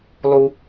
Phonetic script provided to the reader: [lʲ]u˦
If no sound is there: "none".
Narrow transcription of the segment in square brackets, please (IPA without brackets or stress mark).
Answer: lˠ